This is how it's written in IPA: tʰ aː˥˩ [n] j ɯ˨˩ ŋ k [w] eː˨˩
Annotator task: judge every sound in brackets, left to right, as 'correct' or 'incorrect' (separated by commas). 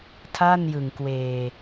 correct, correct